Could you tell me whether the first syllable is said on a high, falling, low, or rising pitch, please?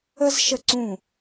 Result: high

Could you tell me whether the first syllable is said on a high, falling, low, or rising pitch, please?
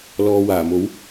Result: low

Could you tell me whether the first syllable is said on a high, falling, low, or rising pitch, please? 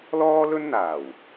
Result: high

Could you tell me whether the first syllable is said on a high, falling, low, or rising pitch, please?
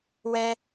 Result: high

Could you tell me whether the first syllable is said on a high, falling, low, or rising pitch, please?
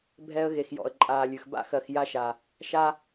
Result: high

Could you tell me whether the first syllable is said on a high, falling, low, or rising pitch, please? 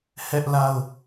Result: high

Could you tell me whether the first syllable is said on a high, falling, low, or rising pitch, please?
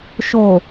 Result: low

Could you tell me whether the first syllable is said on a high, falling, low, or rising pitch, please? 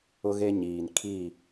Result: high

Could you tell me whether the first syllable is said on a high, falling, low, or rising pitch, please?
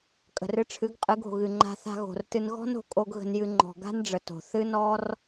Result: low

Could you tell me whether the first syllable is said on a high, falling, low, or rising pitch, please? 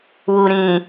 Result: low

